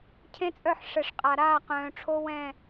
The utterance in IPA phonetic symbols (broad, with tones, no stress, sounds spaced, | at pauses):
cʰ ẽ˦ t͡sʼ œ˦˨ ħ ʂ ɛ˨ ʂ qʼ a˨ ɾ aː˦˨ q œ̃ː˨ ʈ͡ʂʰ o˦ w ɛ̃˦˨